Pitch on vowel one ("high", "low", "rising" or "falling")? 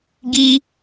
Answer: high